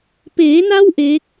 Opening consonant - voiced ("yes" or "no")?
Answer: no